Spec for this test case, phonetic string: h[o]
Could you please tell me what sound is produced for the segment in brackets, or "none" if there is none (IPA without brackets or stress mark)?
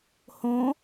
õ